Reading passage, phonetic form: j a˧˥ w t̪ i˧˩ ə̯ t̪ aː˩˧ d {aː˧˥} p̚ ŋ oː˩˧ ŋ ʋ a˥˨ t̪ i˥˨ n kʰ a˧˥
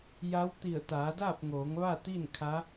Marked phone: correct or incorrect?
incorrect